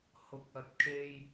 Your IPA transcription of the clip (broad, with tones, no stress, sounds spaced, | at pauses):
h ʊ˨ k̚ ɐ˨ t̚ kʰ e˧ j